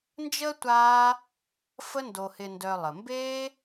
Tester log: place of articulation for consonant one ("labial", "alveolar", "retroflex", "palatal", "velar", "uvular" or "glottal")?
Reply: alveolar